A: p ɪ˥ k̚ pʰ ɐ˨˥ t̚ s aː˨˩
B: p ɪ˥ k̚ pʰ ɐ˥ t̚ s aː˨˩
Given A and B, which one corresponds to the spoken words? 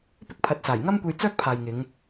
A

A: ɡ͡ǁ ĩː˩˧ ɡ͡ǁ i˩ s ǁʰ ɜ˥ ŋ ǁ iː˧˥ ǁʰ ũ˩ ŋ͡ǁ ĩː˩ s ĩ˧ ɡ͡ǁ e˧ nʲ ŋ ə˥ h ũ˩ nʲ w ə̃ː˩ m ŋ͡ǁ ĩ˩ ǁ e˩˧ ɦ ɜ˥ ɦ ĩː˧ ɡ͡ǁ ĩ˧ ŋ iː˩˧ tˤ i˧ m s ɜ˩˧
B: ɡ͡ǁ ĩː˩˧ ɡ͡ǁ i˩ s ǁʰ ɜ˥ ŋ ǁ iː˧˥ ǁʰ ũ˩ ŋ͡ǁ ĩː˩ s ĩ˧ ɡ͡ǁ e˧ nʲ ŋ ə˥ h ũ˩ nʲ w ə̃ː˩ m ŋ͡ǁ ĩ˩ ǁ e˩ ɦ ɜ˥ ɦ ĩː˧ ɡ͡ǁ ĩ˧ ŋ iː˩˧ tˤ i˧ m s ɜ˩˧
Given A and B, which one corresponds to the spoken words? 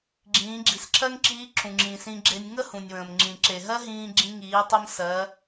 B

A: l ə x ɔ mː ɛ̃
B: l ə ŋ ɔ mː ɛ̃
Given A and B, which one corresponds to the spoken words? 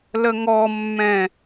B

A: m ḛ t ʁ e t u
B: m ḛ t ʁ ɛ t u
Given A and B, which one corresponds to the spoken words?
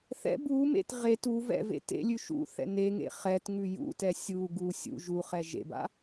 A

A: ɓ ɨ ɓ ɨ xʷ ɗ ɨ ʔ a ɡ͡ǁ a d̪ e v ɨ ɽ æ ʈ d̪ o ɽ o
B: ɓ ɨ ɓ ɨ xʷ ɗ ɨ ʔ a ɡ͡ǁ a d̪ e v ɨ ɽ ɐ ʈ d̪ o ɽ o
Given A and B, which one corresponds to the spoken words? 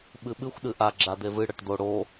B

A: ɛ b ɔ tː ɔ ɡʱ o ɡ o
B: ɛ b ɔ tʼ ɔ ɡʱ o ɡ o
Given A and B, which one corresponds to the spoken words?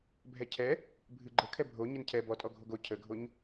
B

